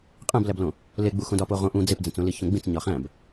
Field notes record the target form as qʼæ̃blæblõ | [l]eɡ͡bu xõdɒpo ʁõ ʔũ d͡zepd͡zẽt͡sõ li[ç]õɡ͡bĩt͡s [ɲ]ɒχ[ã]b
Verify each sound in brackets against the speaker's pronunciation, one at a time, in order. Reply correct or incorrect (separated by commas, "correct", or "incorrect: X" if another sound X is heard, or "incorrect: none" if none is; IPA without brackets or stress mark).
correct, correct, correct, incorrect: æ̃